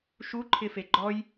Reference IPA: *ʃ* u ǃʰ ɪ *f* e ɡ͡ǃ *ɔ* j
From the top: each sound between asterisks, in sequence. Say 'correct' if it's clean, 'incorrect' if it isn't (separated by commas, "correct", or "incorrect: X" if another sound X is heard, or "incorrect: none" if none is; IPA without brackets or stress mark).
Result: correct, correct, correct